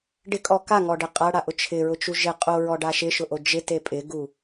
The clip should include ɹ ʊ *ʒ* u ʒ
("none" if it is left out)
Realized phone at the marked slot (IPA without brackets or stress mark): t͡ʃ